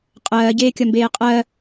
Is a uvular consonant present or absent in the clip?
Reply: present